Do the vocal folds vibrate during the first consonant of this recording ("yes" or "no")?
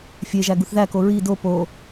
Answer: no